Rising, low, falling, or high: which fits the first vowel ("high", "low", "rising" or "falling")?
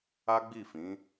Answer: high